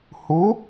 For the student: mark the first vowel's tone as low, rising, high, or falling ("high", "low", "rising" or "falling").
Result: rising